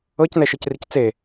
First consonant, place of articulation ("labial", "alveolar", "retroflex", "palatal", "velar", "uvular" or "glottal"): palatal